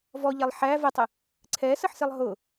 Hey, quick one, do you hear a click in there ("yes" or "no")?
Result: yes